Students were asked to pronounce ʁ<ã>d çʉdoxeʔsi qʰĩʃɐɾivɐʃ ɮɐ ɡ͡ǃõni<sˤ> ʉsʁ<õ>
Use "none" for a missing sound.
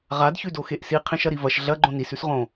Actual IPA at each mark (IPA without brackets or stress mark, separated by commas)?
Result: a, s, õ